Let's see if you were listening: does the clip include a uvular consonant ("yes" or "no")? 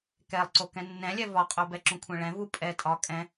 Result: yes